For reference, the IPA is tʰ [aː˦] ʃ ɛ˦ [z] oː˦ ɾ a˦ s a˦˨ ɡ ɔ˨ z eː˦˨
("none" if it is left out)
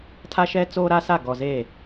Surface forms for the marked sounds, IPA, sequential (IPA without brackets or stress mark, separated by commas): a˦, t͡s